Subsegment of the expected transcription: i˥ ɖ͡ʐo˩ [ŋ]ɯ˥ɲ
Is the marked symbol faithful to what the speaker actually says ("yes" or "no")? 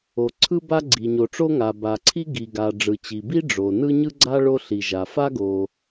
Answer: no